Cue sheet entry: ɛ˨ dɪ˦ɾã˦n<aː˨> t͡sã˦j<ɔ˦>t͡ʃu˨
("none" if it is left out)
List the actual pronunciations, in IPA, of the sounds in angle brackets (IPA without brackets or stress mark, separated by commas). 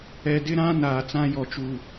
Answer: aː˨, ɔ˨